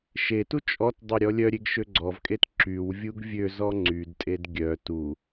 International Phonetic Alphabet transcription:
ʃetu t͡ʃʼɔtdˤe ɾʲɔlʲœɾʲeɡ ʃøɡ͡ǀɔvkʼet ǁyw vʲuɡvʲøzɔ ŋ͡ǀydtʼed ɡʲœ tu

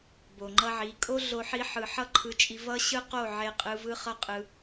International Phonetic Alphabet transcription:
bo˨ŋ͡ǃʌ˧ʕi˨˦ kʼo˦ɮo˧ ħi˧ħɯ˨ ħʌ˦ǃʰɯ˧t͡ʃʼi˧ vʌ˦ ɕɯ˦ qo˦˨ ʕe˧qʼɯ˧ vɯ˦χʌ˦qʼɯ˧

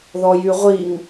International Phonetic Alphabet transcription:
ðɔjyʁʷiŋ

